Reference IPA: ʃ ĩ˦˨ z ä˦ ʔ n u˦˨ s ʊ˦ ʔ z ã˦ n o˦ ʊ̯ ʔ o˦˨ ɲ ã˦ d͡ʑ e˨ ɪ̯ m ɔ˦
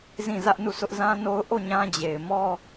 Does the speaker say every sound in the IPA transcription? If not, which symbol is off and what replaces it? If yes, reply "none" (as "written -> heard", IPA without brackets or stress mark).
ʃ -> z